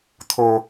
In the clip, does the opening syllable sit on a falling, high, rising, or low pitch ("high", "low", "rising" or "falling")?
high